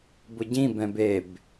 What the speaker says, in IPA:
b ʊ ɟ ĩ b ɛ̃ b e b

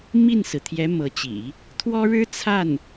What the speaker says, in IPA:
m i˥˩ n s ɹ̩˩ t̪ʰ j ɛ˧˥ m ɤ˧˥ t͡ɕ ḭ˨˩˦ | t̪ʰ w ɔ˥ ɻ ɻ̩˥ t͡sʰ a˥˩ n

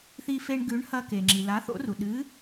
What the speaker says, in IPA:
θ i˧ f e˧ ɳ ɡ ʉ˨˥ ɳ h ɐ˧ k e˩ ŋ͡ǁ i˩ l a˨˥ θ o̰˨˥ r u˩ ɗ ɨ˨˥

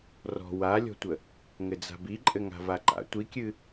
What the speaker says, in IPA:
r ɔ̤ w a lʲ ɔ̤ tʷ ə | ŋ ɘ d͡z a̤ b i ǃʼ ɘ ŋ a̤ v a ǃ a̰ tʷ i kʲ ɨ

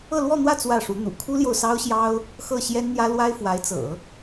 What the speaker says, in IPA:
ɤ˥˧ l w ɔ˥˧ n̪ w ä˥˧ t͡s w ä˥˩ ʂ u˧˥ n̪ ṵ˨˩ kʰ u˥ l j o˨ ʊ̯ s ɑ˥ ʊ̯ ɕ j ɑ˥ ʊ̯ | x ɤ˥˩ ɕ j ɛ˥ n n̪ j ä˥ l w a˥ ɪ̯ f w a˧˥ ɪ̯ t͡s ɤ̰˨˩˦

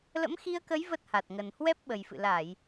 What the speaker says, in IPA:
l ə̰˧˥ m x i˧ ə̯ k ə˨˦ j v ə˦˥ t̚ h a˨˩ t̚ ŋ ə˨˩ n h w ɛ˦˥ p̚ ɓ ə˨˩ j f ɨ̰˧˨ l a˧˩˨ j

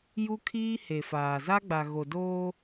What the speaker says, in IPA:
j u˦ kʰ iː˦ h e˨ f aː˨ z a˦ ɡ͡b a˨ ɣ o˨ d oː˦

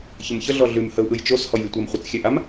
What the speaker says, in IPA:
ç ə m ç ə ɮ ɔ ɮ ʉ m h ə u̯ ʔ ɯ j t͡ʃ o s h ɔ j lʲ ə tʷ a m χʷ ə t͡s xʲ ɛ ʔ a m

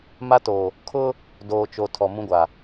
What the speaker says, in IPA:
m a˦ t o˨ | kʰ ʊ˦ | d oː˨ t͡ʃ o˨ tʰ ɔ˨ m ũ˦ ɡʷ a˨

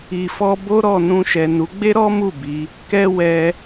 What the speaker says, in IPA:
i˨ f ɔ˧ b o˦ ɾ ɔ˦˨ n ũ˧ ʃ ɛ˨ n u˨˦ ɡ͡b e˦ ɾ ɔ˦ m u˦˨ b i˨˦ | k ɛ˦ w ɛ˧

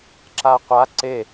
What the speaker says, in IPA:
ǁ a qʷ a ǀ e

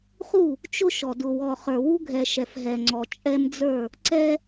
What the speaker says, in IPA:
χ u˦˨ | t͡ʃ ʊ˦ ʃ ɔ˨ d ʊ˨ w ɔ˨ χ ə˞˨ w u˦ ɡʱ ɛ˨ ʃ ɛ˨ f ɦ ɛ˨ ŋ͡ǀ ɔ˨ t͡ʃʼ ɛ˦ m d͡z ə˞˦˨ | ǀ ɛ˦

